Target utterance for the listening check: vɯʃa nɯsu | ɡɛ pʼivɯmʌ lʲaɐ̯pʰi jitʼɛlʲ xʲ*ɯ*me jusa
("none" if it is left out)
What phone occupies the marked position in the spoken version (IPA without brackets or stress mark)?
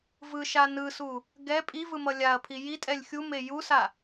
u